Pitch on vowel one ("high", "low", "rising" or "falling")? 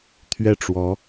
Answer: falling